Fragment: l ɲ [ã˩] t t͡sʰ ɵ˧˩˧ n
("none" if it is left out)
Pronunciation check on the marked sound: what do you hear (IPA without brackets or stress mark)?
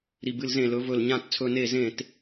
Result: ã˧˩˧